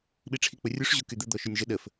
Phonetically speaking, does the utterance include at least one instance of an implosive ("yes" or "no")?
yes